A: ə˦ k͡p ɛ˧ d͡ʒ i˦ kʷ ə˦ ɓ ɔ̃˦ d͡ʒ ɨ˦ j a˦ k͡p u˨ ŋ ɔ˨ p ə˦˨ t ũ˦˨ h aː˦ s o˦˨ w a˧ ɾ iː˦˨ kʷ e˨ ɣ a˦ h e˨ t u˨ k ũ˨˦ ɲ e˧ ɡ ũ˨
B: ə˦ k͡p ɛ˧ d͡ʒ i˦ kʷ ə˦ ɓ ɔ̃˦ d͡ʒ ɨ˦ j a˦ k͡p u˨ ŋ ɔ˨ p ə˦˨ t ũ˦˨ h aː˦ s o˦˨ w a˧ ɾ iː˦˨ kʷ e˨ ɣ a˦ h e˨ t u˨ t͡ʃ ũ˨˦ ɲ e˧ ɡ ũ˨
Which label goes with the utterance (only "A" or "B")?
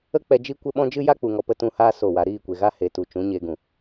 B